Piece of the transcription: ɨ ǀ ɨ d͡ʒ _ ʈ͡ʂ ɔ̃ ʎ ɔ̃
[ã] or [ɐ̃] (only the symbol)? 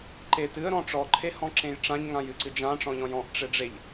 ã